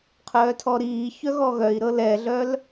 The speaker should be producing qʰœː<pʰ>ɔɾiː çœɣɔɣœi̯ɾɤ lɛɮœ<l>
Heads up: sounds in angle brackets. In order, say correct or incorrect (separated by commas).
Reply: incorrect, correct